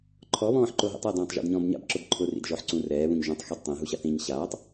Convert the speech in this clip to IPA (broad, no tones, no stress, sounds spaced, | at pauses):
ǃʰ ɔ β ɔ̃ː ħ ǃ o ɦ ḭ tˤ a d ɔ̃ː tˤ ʒ ɔ̰ d ɲ ɔ̃ː b ɲ a̰ b ǁ ʊ b ǃʰ ʊ r ḭ d ʒ ɔ ħ ǀ ũ r ɛː β ũ ɲ ʒ ũ tˤ x i d tˤ ẽ ɦ u ɕ a θ ĩ ɲ ɕ aː tˤ